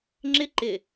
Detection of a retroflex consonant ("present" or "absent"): absent